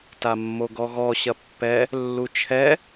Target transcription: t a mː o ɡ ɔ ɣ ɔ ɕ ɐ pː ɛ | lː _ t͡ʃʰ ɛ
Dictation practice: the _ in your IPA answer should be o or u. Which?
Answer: u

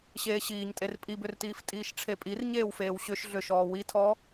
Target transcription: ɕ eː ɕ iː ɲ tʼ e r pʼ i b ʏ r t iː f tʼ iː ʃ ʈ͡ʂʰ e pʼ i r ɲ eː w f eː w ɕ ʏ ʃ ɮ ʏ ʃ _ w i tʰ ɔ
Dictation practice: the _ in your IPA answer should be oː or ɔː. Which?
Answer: ɔː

